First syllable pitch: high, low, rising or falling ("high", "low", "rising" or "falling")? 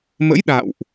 rising